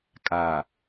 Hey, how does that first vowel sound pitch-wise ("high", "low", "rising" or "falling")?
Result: low